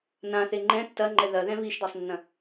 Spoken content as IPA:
n ã θ e ŋ͡ǃ ɛ̃ tː ɐ ŋ͡ǃ ɛ ð ɐ ð ɛ̃ β i ʃ d a sˤ nː ɐ̃

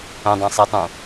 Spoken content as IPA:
ə̃ dˤ ã sˤ i tˤ ũ

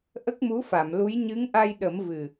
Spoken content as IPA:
ʔ ə˦˥ k̚ m u˧˥ f a˨˩˨ m l u˧˥ j ɲ ɨ˧˥ ŋ ʔ a˧ j ɗ ə˨˩˦ m v ɨ˨˩

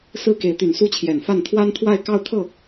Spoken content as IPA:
s ɹ̩˥ k e˧˥ ɪ̯ t̪ y˨˩ n s u˥˩ t͡ɕʰ j ɛ˨˩ n f a˥˩ n t̪ʰ w a˥ n t̪ʰ w a˥˧ ɪ̯ k ɑ˥˧ ʊ̯ t̪ʰ ɤ˥˩

